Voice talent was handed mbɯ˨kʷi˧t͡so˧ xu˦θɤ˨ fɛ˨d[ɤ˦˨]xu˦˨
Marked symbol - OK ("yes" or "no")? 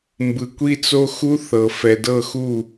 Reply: yes